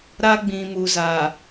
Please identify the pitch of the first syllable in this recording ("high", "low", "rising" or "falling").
high